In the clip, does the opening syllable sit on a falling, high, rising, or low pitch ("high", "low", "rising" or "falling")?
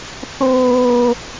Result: high